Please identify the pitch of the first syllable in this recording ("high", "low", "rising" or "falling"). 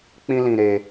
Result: high